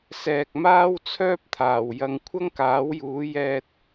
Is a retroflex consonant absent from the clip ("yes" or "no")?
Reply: yes